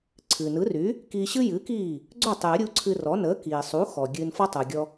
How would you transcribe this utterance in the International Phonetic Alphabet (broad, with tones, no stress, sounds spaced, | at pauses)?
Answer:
ǀʰ ɨː˩ n ɯ˩˥ r y˩˥ | k iː˧ ɕ ɨ˥ j ɨː˩˥ k iː˥˩ | ɡ͡ǀ o˥˩ tˤ j ə˩˥ ɾʲ u˧ ǀʰ ɨ˧ r ɔ˩˥ n əː˩˥ k iː˩ sˤ u˩˥ x ɔ˩ ɡʲ ɨː˧ n f ɔ˥ tˤ u˩ ɡʲ ɔ˧